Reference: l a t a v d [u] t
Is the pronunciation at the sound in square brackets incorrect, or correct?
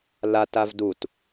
correct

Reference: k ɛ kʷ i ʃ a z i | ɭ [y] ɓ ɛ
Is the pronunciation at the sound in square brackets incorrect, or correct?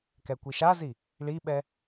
incorrect: i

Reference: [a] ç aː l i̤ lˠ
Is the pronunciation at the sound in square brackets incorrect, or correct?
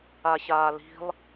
correct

